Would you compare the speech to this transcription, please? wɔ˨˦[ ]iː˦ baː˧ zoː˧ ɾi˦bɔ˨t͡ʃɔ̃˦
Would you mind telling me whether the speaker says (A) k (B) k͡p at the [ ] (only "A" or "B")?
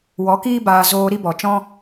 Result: A